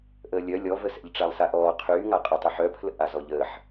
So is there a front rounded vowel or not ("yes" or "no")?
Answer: yes